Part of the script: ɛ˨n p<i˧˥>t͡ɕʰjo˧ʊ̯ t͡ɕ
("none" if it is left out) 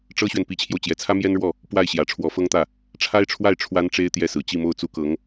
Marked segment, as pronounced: i˧˥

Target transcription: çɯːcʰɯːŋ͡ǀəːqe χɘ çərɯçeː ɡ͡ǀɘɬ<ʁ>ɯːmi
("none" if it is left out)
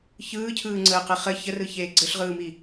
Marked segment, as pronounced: ʁ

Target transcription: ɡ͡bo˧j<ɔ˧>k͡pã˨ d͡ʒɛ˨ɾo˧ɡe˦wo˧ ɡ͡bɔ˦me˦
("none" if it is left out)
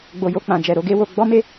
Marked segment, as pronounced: o˧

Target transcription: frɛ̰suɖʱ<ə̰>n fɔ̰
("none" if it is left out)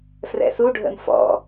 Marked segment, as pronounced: ə̰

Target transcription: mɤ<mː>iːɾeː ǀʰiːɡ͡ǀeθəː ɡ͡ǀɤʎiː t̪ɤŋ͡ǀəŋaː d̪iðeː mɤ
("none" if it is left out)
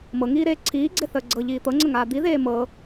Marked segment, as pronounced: ŋ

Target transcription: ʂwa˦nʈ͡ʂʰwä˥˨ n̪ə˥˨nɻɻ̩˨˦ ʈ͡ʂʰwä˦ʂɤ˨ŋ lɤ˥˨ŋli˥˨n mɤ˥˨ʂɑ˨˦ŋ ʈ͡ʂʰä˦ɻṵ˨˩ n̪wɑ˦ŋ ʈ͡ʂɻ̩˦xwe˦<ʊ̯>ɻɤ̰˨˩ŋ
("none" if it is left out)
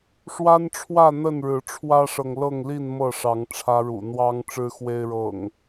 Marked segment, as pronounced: ɪ̯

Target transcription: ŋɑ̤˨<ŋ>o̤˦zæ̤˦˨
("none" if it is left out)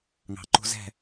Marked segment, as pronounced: ǃ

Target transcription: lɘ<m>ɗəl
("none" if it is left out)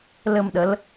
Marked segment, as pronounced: m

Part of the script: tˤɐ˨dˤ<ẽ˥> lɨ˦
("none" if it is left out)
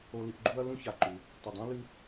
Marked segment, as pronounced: ẽ˥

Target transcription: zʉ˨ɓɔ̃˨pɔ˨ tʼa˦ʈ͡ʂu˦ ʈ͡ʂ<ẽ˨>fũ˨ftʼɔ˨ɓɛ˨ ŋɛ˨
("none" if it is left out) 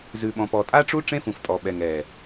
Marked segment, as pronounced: ẽ˦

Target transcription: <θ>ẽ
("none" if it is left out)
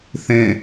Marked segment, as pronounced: θ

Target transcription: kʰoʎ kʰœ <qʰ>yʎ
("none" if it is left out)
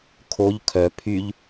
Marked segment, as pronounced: pʰ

